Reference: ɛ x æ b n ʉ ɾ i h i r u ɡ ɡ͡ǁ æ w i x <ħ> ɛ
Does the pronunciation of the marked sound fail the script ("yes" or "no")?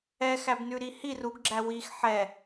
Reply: no